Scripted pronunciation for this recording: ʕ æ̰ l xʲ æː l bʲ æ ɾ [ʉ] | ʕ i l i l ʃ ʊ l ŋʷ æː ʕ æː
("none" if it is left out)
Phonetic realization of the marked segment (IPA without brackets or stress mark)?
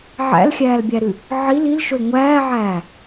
ʉ